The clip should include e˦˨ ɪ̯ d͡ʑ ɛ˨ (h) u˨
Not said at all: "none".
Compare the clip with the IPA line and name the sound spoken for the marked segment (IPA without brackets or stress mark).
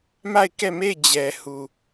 h